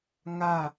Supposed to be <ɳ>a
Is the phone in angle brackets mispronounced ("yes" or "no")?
yes